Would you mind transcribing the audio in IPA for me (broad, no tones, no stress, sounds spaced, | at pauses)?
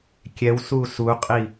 kʲ ɛ w s u s u qʼ i